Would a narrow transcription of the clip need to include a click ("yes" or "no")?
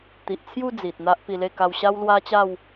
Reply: no